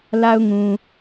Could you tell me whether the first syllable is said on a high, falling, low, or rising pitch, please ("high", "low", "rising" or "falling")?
high